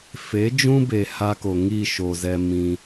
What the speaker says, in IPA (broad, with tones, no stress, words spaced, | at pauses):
fe˨˦d͡ʒũ˦be˨ ha˦ko˨ ŋi˦˨ʃo˨zɛ˧ mĩ˧